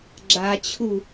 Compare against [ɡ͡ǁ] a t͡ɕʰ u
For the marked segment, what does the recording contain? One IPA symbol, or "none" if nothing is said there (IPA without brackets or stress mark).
ɡ͡ǁ